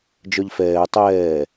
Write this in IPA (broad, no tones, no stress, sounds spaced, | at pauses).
d͡ʒ œ ʎ f ɛː tˤ ɛː